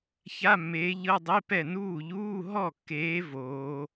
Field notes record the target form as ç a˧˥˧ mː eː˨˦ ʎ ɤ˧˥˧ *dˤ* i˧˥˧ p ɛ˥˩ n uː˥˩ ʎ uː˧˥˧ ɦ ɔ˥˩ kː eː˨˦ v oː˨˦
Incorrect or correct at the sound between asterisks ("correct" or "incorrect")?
correct